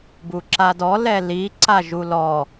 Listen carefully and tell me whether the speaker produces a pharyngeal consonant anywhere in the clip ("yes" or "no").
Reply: no